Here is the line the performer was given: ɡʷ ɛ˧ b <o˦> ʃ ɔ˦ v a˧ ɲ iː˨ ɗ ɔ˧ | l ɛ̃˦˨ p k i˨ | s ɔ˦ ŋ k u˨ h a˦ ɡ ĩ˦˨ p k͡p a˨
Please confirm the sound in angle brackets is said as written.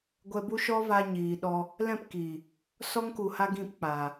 no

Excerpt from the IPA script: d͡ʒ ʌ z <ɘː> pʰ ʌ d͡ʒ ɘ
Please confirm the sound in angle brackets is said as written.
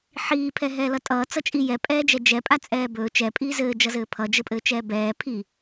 yes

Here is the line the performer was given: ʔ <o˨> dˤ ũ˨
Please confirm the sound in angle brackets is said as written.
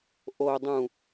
yes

